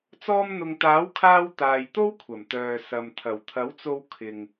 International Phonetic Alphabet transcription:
t͡s ɔː˧ m n̪ ʊ˨ ŋ t̪ aː˨˥ w kʰ aː˧ w t̪ aː˨ j t̪ o˥ w kʷʰ ɐ˨˩ m t̪ œː˨ s ɐ˨ m t̪ʰ ɐ˨˩ w t̪ʰ ɐ˨˥ w t͡s o˧ w kʰ ɪ˨ ŋ

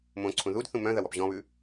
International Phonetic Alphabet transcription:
m õ ǀʰ ũ ð u d θ ũ m œ̃ ð ɐ w ɔ p ʑ ɔ̃ β ʉ

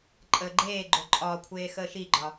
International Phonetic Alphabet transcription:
ǃʼ əː ɡ͡ǃ eː ɡ͡ǃ o ǃʼ ɒ kʷʰ eː x əː ʃ i ɡ͡ǃ ɒ

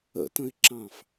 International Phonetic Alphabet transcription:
ə̰ t ə̃ ɪ̯ ǁ ɑ̃ f

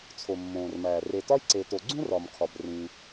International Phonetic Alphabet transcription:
t͡sʰ o˩ mː õː˩ r m æː˩ r e˩ t ɒ˥ j ǀ e˩ t o˩ ɡ͡ǀ ũ˥ r ɒ˩ m kʰ ɒ˩ b r ĩː˩

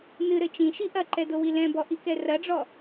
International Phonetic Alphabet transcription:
n ɨ ɾ ɘ t͡ʃ ĩ ʃ i ʔ ɐ ǃ ɛ d o w i l ɛ̃ b ɔ ʔ i k ɛ r ɐ ɖ͡ʐ ɔ

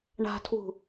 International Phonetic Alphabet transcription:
ɳ a̤ tʰ w ṳ

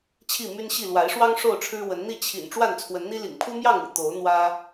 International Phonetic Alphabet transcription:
t͡ɕʰ i˥˨ m y˦ n ɕ i˥˨ l w a˨˦ ɪ̯ ʂ w ɑ˦ ŋ ʂ o˥˨ ʊ̯ ʈ͡ʂʰ ɻ̩˦ w ə˨˦ n n̪ i˥˨ t͡ɕʰ ḭ˨˩ n ʈ͡ʂ w a˥˨ n t͡sʰ w ə˨˦ n n̪ i˦ l ḭ˨˩ ŋ pʰ u˦ m j ɑ˥˨ ŋ ṵ˨˩ t̪ o˨˦ ʊ̯ n̪ w ä˦

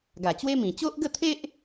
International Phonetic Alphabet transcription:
ɡ a˨˩ t͡ɕ w e˦ m ĩ˨˩ t͡ɕ o˦ ʔ ɡ ə˥˧ t̪ʰ e˦ ʔ

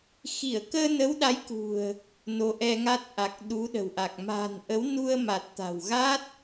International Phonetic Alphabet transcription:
x i˧˩ ə̯ k əː˧ n ə˨˦ w ɗ a˨˦ j k ṳ˨˩ ə̯ | n o˨˦ ʔ ɛ˧ ŋ a˦˥ t̚ ʔ a˨˩ k̚ ɗ u˨˦ ɗ ə̤˨˩ w ʔ a˨˩ k̚ m a̤˨˩ n ʔ ə˨˦ w n u˧ ə̯ m a˨˩ t̚ t̪ a̤˨˩ w ɣ a˦˥ t̚

